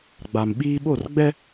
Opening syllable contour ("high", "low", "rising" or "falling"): low